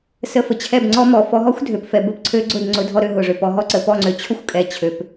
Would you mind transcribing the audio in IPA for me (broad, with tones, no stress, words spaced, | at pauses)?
sə˧fə˨t͡ɕʰɛ˦˨bŋ͡ǀɔ˦ mɔ˨fɔ˧ɦɔ˦xʷdʱø˨p fɛ˨bə˦pǀʰø˧ ɡ͡ǀʊ˦˨dŋ͡ǀʊ˨˦dʱɔ˧ɾø˧ ɦʊ˨ʐø˨pɔ˧ ɦɔ˦ǀə˨pɔ˦˨ ŋ͡ǀø˨t͡ɕʰʊ˦xʷ kʼɛ˧t͡ɕʰø˧p